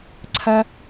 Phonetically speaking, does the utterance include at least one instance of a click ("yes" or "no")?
yes